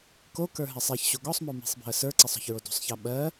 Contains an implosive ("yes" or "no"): yes